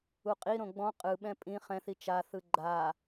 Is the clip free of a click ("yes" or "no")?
no